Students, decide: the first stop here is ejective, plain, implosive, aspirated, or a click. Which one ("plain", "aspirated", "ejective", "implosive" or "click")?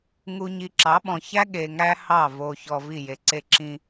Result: click